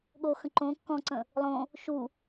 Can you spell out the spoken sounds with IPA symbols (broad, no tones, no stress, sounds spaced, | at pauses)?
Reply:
ɠ o x ə̃ ǃ õ kː ɔ̃ ǀ ə̃ | lˠ õ | ʃ u